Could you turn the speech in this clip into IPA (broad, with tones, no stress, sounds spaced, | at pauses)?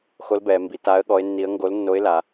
x o˧˥ l b ɛː˩˧ m b i˩˧ t a˧˥ ə̯ ɠ ɔ˧˥ ɪ̯ nː i˧˥ ə̯ ŋ ɡ o˧˥ l nː o˧˥ ɪ̯ l a˩˧